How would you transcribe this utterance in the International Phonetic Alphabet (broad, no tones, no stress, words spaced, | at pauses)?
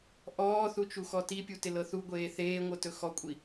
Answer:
ʔɔːθut͡ʃuxɔ tipʲutɪlɤ θuɡʷeː θeːŋʷɤtɵ xɔkʷʼi